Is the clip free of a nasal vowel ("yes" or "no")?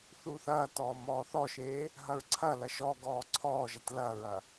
yes